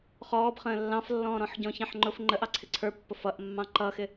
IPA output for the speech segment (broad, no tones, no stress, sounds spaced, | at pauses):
χ ɔː b χ ə̃ː lː ɑ̃ f lː ɔ̃ː ɾ ɔ̃ ħ ɟ ɔ̃ ç ɑ̃ ħ ŋ͡ǃ ʊ f ŋ͡ǃ ə ʔ ɑ ǀʰ ɪ ǀʰ ə˞ pː ʊ f ʌ ʔ mː ɑ̃ ǃ ʌ x ɪ